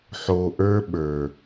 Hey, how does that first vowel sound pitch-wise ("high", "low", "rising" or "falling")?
low